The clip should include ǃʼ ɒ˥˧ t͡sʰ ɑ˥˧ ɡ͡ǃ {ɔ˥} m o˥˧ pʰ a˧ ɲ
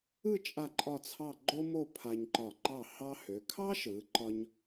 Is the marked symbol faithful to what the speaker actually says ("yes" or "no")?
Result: no